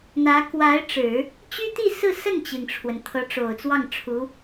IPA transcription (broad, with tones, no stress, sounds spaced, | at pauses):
n̪ ä˧˥ k w a˧˥ ɪ̯ ʈ͡ʂ ɻ̩˨˩˦ | t͡ɕ y˥ t̪ i˥˧ s ɹ̩˥˧ s ə˥˩ n t͡ɕ i˩ ŋ ʈ͡ʂʰ w ə˩ n t̪ʰ ɤ˧˥ ʈ͡ʂ o˨˩ ʊ̯ t͡s w ɑ˥˩ ŋ ʈ͡ʂʰ u˧˥